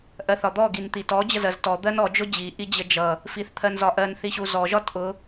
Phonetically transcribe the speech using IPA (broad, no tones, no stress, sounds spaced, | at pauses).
ʔ ɜ θ ɒ d̪ ɔ ɡ i n t̪ i t ɔ d͡ʑ ə z ɜ z t ɔ d̪ ɜ n ɔ d͡ʒ ʊ d͡ʑ i ʔ i d͡ʑ ə d͡ʒ ʌ | f i θ t̪ʰ ɜ n z ɒ ʔ ɜ n θ i ɕ u z ɔ ʒ ɒ t ʔ ʊ